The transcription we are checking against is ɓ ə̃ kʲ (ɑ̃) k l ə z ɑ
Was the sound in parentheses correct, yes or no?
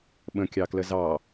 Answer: no